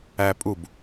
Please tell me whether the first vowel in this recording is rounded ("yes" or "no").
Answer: no